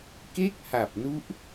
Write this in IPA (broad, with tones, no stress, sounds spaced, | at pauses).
k e˥˩ k̚ h a˨˩ p̚ n u˦˥ ʔ